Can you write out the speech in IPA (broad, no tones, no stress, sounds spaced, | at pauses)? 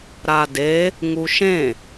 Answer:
ɾ a d e | ŋ u ʃ ẽ